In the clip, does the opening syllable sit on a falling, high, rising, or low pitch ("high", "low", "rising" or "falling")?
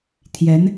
rising